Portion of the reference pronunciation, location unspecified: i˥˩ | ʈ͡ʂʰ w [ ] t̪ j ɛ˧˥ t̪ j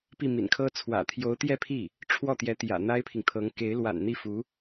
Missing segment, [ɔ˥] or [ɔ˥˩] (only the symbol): ɔ˥˩